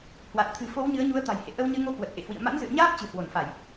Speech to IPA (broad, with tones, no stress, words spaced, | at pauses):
hwa˨˩t̚t̪ʰɨ̤˨˩fo˨˦w ɲɨ˨˦ə̯ɲu˨˦ə̯t̪a̤˨˩jhḛ˧˨ ʔə˧wɲɨ˧ ŋo˧ kwə˨˩t̚ ʔḛ˧˨hwḭ˧˨ə̯ ma̰˧˥nzɨ̰˧˨ə̯ɲaː˦˥p̚ t͡ɕɨ̤˨˩hwo˧˩nfa˧˩˨j